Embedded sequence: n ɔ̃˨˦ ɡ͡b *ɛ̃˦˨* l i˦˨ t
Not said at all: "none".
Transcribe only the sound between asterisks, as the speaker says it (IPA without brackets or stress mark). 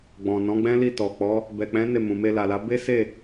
ɛ̃˦